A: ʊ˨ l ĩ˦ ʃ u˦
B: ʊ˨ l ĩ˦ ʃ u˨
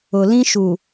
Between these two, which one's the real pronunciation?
B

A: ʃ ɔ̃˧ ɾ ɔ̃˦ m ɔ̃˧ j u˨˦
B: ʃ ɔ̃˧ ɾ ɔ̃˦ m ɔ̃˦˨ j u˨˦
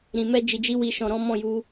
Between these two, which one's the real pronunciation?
B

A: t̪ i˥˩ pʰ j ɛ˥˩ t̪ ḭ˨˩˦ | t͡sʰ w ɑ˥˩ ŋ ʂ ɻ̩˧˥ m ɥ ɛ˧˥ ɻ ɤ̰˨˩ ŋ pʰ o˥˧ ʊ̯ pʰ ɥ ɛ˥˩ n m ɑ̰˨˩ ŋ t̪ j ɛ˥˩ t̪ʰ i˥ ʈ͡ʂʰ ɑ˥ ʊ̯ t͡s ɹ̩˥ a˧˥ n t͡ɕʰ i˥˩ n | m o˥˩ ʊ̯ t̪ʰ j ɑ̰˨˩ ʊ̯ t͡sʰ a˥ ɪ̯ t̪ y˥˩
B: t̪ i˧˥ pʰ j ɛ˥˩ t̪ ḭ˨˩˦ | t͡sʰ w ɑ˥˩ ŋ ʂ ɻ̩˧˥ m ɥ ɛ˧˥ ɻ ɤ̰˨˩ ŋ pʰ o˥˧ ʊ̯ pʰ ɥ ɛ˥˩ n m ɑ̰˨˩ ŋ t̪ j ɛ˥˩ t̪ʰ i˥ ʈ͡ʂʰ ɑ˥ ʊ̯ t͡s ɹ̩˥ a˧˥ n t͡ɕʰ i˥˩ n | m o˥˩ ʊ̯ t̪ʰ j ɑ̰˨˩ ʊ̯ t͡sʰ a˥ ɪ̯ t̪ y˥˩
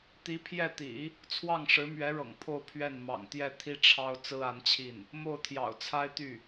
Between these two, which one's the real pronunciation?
B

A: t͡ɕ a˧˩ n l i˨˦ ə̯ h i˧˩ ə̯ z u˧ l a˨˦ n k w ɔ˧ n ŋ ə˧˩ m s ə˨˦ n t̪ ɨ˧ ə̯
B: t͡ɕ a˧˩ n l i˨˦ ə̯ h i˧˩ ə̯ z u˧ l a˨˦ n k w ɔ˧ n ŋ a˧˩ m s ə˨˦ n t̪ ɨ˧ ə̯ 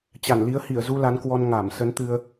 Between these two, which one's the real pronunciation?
B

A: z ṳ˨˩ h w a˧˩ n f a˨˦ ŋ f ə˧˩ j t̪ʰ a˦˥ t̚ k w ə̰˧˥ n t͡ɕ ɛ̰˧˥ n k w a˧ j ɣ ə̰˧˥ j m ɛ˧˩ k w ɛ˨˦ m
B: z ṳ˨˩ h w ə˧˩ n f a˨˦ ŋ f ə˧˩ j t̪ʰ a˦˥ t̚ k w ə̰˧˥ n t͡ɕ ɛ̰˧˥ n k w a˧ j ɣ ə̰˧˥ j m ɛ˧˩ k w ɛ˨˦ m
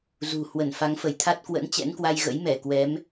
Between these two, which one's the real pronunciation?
B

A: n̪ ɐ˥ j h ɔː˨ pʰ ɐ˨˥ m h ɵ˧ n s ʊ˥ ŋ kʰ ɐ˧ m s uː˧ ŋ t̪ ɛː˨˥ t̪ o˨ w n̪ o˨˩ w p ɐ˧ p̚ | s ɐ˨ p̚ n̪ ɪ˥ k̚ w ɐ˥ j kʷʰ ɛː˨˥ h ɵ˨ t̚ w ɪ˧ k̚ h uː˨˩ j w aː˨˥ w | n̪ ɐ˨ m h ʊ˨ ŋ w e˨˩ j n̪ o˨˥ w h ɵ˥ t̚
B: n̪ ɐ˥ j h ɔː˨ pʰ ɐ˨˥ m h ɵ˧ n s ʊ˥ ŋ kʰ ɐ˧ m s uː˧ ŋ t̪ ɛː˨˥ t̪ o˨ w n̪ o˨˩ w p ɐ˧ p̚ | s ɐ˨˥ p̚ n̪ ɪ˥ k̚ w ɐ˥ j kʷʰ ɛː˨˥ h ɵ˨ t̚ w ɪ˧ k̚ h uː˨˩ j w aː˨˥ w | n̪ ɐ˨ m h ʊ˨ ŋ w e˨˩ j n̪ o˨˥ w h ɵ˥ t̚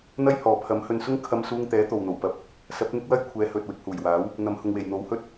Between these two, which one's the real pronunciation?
B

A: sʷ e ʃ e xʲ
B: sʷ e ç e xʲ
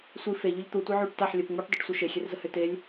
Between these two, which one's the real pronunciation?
A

